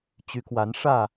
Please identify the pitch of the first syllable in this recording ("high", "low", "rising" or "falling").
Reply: rising